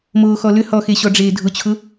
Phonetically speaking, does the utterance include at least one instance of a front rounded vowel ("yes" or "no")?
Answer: yes